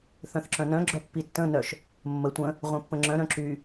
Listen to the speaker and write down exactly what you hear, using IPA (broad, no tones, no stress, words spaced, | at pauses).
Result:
θœ̃θǁœ̃nœ̃ ɡ͡ǁœpːitːə̃ nœʃ | mːə tʷə̃ | ʁʷœ̃pːə̃ŋ͡ǁœ̃ ɾœ̃ǁy